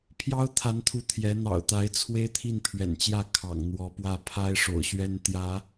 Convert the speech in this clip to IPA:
pʰ j ɑ˥ ʊ̯ t̪ʰ a˧˥ n t̪ʰ u˧˥ t̪ʰ j ɛ˧˥ n̪ ɑ̰˨˩ ʊ̯ t̪ a˧˥ ɪ̯ t͡sʰ w e˥ ɪ̯ t̪ʰ i˥˩ n pʰ ɥ ɛ̰˨˩ n t͡ɕ j ä˥˩ kʰ ɑ̰˨˩ ŋ n̪ w ɔ˧˥ p w ä˥˩ pʰ a˥ ɪ̯ ʂ o̰˨˩ ʊ̯ ɕ ɥ ɛ˥ n t̪ j ä˧˥

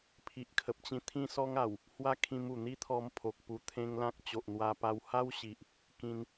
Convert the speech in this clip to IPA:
pʰ i˨ ʔ kʰ ə˨ p̚ t͡ɕ ĩ˧ t̪ʰ ĩ˦ s ɔ˦ ŋ a˨˩ w | h w a˦ kʰ ĩ˧ m u˨˩ n̪ i˦ t̪ʰ ɔ˧ m pʰ o˨ k̚ p u˧ t̪ʰ ẽ˦ ŋ l ã˦ k̚ t͡ɕ o˨ ʔ n̪ w a˧ p a˧ w h a˦ w ɕ i˨ ʔ | k ĩ˧ n

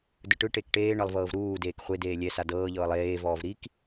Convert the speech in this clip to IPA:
d ɯ ʈ ɯ ʈ e k ʈ eː ɳ ɤ lˠ v ɤː v ɾ uː d eː k χʷ e d eː lʲ ɛ s a d ɤː ʎ ɤː lˠ eː v ɔː v ɾ i k

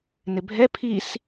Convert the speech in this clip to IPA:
n ɪ bʱ ɛ pʰ i s

